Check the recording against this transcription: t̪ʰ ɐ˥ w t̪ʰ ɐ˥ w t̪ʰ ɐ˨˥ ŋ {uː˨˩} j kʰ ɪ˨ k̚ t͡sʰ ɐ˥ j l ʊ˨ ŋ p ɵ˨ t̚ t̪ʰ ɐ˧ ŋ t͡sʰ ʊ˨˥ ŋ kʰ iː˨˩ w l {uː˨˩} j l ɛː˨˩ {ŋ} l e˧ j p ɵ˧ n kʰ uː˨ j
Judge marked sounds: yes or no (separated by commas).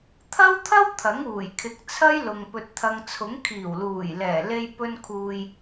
yes, yes, no